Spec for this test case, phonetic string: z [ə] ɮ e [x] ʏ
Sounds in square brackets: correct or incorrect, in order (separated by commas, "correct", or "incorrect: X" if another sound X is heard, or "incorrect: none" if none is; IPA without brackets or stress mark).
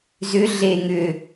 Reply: incorrect: ʏ, incorrect: ŋ